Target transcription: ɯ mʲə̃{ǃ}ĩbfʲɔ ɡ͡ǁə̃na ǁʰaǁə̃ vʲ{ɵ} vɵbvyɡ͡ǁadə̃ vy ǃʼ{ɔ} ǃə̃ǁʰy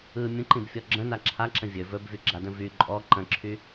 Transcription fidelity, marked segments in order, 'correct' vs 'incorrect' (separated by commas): correct, correct, correct